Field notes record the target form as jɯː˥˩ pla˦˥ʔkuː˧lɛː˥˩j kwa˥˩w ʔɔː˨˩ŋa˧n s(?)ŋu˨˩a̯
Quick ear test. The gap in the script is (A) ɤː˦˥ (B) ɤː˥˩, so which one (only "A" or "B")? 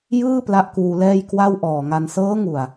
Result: A